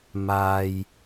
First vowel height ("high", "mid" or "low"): low